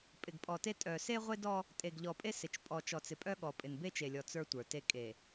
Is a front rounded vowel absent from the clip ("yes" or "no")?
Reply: no